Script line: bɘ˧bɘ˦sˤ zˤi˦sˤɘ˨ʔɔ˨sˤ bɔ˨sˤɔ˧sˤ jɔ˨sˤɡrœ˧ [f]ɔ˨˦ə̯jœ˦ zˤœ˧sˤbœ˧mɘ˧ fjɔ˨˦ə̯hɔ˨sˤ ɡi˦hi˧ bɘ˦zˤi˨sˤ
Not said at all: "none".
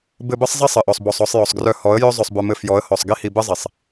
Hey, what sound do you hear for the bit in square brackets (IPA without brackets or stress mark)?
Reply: h